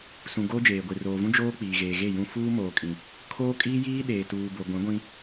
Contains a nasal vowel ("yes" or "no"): yes